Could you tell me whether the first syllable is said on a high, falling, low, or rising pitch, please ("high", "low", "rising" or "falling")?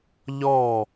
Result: falling